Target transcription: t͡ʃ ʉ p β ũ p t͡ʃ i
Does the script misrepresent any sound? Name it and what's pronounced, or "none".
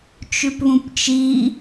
none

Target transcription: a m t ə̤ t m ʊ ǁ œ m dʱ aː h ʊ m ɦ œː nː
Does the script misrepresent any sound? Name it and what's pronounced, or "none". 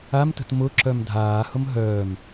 nː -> m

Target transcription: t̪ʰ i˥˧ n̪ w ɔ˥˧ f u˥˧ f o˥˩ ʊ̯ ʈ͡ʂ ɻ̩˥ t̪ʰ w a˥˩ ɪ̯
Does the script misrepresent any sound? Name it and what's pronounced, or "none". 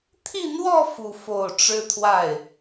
none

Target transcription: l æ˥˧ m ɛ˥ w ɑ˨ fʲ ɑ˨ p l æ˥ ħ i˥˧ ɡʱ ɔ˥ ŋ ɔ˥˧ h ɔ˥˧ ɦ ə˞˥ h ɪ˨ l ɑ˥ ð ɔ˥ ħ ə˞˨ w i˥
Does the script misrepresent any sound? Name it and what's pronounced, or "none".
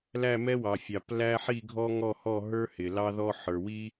none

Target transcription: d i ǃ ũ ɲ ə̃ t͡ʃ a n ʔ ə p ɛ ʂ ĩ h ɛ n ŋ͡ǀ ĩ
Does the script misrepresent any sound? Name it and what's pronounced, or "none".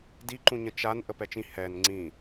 ʂ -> t͡ʃ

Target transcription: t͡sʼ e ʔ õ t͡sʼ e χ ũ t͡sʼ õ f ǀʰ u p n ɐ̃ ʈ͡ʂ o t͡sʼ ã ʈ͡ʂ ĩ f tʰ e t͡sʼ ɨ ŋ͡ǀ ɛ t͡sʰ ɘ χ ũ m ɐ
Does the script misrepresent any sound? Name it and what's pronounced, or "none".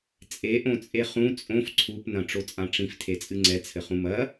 none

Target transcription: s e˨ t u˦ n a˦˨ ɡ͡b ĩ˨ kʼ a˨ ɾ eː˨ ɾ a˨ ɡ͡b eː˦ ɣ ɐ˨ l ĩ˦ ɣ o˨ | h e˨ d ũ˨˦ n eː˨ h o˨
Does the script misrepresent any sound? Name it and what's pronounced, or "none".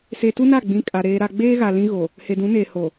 ɐ˨ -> a˨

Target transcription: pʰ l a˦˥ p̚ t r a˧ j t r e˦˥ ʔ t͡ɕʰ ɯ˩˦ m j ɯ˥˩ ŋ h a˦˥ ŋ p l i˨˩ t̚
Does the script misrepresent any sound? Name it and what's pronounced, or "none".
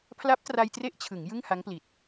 m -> ŋ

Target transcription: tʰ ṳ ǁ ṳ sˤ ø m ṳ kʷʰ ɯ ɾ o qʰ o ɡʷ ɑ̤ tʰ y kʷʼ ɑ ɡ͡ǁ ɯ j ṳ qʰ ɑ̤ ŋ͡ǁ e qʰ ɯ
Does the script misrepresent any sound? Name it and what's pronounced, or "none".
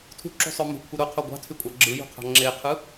none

